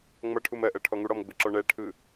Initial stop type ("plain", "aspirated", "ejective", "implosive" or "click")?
aspirated